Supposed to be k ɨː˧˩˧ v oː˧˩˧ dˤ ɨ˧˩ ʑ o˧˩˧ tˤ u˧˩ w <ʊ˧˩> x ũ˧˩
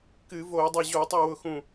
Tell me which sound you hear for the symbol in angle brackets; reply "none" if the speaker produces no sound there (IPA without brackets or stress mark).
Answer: ʊ˧˩